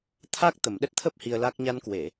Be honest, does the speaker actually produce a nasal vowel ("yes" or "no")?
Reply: no